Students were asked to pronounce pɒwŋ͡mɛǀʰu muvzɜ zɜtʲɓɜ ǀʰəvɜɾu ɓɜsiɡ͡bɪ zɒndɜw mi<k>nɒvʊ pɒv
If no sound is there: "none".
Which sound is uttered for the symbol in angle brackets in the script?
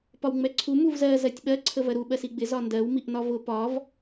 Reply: ʔ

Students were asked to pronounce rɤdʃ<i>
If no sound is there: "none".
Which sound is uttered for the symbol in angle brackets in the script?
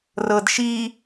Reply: i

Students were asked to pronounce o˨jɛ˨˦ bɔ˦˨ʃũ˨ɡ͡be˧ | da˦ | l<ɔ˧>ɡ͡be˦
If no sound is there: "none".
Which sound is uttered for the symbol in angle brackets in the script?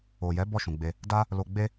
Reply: o˧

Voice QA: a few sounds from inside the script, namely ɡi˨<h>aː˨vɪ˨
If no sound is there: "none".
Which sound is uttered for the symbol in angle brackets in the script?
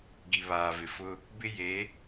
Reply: β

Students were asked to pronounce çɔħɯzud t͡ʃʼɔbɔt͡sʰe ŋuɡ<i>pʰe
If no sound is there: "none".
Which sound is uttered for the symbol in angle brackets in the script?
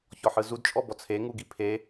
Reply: i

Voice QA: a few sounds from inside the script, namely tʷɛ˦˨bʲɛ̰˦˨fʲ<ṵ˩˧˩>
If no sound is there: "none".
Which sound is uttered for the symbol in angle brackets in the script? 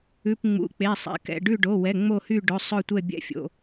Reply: o̰˩˧˩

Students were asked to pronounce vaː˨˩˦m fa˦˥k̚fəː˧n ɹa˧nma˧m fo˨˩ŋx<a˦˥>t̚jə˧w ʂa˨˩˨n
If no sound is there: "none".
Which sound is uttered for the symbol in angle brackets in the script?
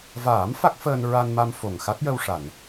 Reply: a˦˥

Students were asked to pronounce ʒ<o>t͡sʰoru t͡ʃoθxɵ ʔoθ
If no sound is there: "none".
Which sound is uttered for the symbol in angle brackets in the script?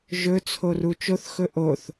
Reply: ɵ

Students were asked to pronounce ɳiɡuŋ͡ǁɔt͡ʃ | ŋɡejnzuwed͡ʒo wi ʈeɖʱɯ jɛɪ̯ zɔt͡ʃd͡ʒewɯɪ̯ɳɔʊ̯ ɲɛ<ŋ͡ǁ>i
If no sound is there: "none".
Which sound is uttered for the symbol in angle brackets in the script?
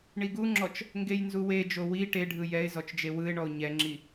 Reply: ŋ͡ǁ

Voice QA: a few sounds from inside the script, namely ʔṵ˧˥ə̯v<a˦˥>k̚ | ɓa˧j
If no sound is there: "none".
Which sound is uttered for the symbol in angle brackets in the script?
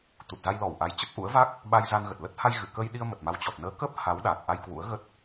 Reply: a˦˥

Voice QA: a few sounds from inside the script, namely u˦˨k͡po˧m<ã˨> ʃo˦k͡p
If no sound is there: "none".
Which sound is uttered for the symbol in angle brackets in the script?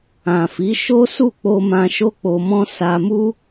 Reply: ã˧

